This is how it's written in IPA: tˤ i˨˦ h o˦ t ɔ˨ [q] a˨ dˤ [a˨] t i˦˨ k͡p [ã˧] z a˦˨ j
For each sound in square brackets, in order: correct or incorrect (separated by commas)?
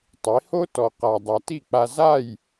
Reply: correct, correct, incorrect